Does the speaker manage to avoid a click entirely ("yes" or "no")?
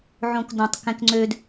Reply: no